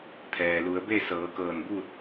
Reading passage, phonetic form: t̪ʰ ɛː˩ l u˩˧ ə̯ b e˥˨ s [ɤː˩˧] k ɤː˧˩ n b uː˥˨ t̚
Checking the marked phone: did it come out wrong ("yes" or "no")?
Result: no